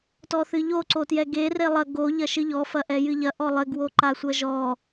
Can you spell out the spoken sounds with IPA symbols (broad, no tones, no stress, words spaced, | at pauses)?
tɔθɨʎo ǀotjɛɡe relˠɐ ɡo ʎɐʃɨʎɔ fɐʔɛjɨʎɐ ʔɔlˠɘ ɡwoǃasʷɐʒɔ